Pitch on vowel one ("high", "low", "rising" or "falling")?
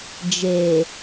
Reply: low